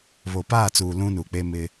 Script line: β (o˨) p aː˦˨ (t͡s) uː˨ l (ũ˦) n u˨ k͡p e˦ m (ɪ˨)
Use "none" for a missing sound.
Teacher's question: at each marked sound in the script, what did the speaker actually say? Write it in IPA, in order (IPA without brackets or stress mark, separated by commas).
o˨, t͡s, ũ˦, ɪ˦